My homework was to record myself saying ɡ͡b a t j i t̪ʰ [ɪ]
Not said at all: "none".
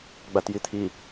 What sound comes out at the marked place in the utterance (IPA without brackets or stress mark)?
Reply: i